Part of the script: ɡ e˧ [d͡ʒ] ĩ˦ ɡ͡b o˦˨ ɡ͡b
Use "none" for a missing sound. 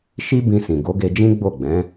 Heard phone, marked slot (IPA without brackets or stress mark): d͡ʒ